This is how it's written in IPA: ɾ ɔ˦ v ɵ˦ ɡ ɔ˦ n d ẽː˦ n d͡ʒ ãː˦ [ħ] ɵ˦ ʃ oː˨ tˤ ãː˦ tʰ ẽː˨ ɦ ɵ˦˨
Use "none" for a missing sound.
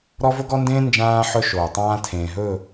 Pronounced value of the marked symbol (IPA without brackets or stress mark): ħ